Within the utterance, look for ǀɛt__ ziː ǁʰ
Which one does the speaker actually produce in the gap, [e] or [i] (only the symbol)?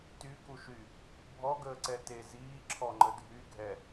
e